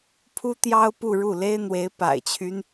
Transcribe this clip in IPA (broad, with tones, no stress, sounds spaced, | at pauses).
pʰ u˥ t̪ j ɑ˥ ʊ̯ p u˥˧ ɻ u˥˩ l e˥ ɪ̯ n̪ w e˧˥ ɪ̯ p a̰˨˩ ɪ̯ t͡ɕʰ y˦ n